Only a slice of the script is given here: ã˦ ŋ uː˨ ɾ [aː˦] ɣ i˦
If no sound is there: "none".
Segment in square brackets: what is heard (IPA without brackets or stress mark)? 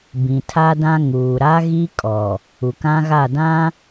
a˦